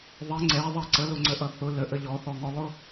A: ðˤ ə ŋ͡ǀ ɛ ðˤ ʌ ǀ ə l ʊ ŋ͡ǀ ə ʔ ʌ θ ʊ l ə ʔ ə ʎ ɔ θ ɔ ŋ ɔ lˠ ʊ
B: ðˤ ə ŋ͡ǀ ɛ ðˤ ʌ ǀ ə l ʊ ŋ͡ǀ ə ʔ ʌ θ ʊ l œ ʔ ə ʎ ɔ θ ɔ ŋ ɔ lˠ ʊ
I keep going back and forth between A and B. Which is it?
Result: A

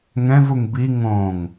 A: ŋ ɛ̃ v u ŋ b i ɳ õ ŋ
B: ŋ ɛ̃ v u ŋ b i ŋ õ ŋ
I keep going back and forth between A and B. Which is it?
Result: B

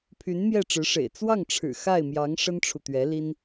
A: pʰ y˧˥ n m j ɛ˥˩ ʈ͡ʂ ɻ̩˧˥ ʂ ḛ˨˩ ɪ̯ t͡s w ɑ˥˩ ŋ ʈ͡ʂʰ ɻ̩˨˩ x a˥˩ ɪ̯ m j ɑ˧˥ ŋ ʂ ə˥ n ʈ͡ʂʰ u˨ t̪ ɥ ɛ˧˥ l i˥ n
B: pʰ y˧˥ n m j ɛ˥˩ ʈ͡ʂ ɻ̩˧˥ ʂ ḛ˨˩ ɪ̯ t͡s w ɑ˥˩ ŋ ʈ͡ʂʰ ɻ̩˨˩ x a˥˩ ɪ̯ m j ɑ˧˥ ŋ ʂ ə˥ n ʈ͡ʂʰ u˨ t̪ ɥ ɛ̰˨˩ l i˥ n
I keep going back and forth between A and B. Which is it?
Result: A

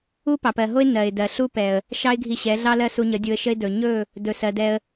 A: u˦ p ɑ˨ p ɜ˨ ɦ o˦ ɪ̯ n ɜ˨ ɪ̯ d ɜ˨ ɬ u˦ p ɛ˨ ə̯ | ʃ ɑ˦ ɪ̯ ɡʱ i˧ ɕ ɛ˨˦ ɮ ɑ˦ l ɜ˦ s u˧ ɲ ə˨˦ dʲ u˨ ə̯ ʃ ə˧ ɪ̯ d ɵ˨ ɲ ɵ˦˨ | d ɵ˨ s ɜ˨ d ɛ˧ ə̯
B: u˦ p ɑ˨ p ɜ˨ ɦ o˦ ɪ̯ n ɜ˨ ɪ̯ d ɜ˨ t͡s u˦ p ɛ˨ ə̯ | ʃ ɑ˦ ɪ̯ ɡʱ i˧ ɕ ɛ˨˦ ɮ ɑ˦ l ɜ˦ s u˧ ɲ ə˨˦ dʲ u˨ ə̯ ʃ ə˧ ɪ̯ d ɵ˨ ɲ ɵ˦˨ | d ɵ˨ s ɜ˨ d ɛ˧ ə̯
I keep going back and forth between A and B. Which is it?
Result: A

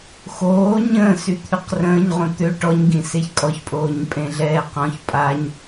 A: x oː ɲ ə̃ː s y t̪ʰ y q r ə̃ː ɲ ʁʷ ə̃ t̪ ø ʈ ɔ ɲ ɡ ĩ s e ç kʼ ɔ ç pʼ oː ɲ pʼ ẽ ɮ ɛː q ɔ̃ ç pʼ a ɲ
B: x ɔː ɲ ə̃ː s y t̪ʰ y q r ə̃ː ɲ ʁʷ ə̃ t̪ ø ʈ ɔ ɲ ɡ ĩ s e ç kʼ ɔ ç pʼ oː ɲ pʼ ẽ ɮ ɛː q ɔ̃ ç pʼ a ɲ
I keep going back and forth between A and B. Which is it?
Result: A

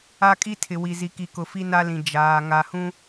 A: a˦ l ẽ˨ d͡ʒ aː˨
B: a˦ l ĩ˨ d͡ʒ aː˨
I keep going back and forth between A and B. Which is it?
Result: B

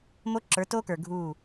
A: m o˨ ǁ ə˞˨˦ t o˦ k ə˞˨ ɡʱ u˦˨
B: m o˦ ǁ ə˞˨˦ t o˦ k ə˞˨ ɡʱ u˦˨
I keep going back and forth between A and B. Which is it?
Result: B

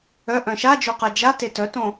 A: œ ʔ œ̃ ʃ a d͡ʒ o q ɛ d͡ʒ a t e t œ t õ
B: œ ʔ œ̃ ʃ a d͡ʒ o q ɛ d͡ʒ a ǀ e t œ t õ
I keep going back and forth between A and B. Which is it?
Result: A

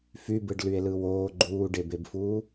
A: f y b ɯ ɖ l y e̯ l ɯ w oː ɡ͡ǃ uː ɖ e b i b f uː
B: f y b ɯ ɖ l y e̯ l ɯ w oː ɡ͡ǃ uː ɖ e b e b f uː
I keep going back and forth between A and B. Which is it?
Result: B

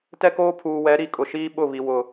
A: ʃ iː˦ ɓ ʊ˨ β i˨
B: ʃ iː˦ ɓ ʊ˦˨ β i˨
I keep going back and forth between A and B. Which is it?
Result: B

